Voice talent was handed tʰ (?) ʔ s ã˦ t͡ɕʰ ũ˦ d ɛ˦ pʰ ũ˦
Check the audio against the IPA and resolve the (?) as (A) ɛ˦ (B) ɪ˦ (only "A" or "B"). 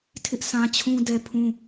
B